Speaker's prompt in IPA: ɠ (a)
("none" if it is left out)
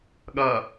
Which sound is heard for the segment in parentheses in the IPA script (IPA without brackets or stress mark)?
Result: ɐ